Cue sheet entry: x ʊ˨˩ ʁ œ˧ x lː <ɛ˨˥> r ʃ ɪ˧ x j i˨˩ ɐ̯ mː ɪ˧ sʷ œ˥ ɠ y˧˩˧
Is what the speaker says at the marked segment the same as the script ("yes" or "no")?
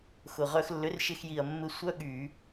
no